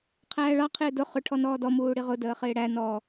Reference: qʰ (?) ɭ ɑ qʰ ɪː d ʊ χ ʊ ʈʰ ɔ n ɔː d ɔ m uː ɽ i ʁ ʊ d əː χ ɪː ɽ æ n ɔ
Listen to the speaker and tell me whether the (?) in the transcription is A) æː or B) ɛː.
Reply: A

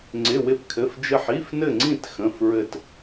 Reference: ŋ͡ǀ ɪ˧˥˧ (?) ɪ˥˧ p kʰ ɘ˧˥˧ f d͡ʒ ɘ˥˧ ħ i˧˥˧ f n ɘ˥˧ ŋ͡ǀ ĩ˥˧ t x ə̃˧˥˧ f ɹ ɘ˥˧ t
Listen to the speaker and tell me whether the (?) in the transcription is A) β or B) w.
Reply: B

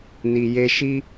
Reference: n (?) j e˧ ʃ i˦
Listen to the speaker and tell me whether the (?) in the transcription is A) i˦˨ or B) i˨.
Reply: B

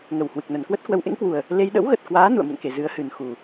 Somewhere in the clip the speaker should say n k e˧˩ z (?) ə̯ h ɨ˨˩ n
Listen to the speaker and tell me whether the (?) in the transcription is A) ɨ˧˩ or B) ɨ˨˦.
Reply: B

